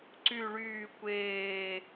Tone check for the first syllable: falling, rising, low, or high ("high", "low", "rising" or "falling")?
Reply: falling